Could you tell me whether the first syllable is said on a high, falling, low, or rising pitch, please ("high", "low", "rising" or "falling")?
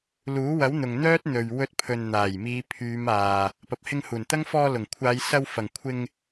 rising